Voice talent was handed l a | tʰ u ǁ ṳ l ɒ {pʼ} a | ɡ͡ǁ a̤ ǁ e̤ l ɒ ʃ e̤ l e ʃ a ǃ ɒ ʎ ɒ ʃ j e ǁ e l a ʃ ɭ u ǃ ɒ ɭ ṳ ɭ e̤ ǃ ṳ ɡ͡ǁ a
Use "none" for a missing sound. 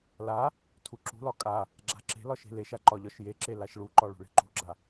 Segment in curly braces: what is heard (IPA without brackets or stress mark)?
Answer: kʼ